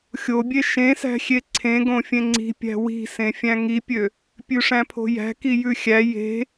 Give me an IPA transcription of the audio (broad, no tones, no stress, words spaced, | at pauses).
xʲobʲe ʃẽsæ̤xʲe ǀʰẽ ɡõfʲẽŋ͡ǀi̤pʲæ̤ wi̤sẽ fʲæ̃ŋipʲø | pʲʉʂæ̃pʰo̤jæ̤ kijʉxʲæ je̤